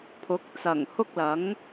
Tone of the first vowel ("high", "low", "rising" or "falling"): rising